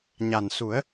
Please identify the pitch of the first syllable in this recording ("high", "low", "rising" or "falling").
low